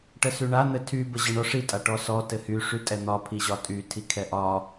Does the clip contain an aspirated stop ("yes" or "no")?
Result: yes